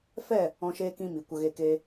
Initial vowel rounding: unrounded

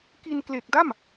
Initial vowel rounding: unrounded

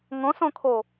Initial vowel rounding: rounded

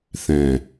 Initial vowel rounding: unrounded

